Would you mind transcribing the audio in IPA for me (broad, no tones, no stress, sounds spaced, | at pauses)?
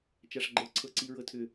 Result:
t͡ʃ a ʂ ɡ͡ǃ ɤ ǀʰ ɤ ǀ i ɹ ɤ tʰ ʏ